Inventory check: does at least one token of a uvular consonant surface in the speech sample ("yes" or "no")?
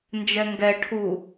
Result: no